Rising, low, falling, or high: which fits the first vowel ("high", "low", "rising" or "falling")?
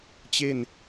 falling